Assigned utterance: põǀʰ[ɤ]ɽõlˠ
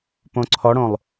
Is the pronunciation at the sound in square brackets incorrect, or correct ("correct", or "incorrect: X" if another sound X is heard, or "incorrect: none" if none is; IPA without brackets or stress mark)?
incorrect: ɔ